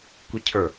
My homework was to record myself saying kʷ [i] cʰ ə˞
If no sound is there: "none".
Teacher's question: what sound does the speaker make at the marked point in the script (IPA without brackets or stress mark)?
i